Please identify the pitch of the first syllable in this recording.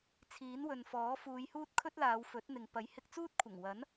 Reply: rising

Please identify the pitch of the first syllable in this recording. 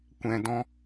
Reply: low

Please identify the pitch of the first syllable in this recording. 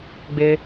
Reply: high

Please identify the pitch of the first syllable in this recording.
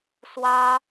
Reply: high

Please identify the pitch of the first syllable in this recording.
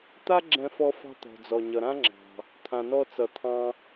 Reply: high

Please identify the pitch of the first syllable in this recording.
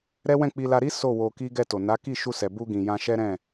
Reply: high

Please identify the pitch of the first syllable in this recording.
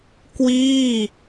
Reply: falling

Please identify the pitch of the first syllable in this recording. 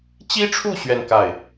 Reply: high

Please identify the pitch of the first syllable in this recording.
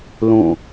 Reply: falling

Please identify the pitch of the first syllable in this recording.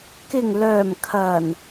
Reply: low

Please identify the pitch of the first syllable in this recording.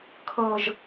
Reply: low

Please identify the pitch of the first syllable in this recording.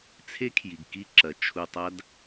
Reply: high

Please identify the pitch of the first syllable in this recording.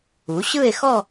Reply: rising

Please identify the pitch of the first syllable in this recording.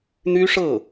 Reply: high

